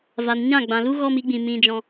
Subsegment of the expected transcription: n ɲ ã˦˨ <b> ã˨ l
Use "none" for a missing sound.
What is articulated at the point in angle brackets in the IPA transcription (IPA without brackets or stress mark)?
ɡ͡b